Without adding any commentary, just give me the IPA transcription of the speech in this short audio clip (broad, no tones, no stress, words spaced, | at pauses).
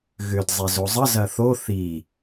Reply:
ɣʏd zˤezozˤə zɐθo θi